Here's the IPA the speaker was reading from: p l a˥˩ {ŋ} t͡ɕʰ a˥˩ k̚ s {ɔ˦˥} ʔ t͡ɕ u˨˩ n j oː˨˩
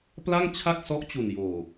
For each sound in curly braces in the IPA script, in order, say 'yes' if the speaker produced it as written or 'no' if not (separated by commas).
yes, yes